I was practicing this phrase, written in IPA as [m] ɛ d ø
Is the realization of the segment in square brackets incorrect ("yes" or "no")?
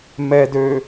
no